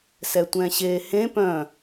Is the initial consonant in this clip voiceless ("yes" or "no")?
yes